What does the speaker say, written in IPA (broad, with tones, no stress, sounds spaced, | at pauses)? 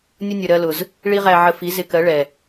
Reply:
nʲ ʊ˦ nʲ ə˨ ɾ ɜ˧ l ʊ˨ z | ɭ i˦ ʁ æ˧ ʕ ə˧ f i˨˦ z ɪ˧ k ɜ˨˦ ɭ ɛ˨